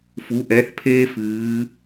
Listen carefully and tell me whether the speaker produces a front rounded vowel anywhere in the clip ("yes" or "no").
no